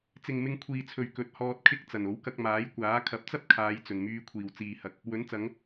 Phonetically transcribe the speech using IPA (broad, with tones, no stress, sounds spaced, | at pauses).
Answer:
t͡s ɪ˨ ŋ m ɪ˧ ŋ kʷʰ iː˨ t͡sʰ ɵ˨ ɥ k ɵ˨˥ t̚ h ɔː˧ t̚ kʰ ɪ˥ k̚ t͡s ɐ˨˩ n o˨˥ w k ɐ˧ k̚ m aː˨˥ j kʷ aː˨˥ kʰ ɐ˨˥ p̚ t͡s ɐ˥ p̚ kʰ aː˨˧ j t͡s ɵ˨˩ n m yː˧ kʷʰ iː˨˩ w t͡s iː˨ h ɐ˨ k̚ | w ɵ˨˥ n t͡s ɐ˨˧ ŋ